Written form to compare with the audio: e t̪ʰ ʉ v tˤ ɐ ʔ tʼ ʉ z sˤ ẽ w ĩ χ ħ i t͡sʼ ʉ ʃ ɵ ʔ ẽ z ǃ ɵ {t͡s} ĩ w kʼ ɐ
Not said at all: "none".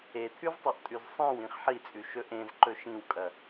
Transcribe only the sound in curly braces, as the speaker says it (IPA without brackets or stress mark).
ʃ